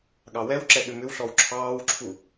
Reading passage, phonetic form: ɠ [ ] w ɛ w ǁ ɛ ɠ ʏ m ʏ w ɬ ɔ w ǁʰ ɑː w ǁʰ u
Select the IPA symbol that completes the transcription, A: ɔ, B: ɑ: B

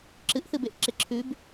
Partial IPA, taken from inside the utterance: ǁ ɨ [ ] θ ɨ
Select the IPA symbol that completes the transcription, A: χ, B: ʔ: B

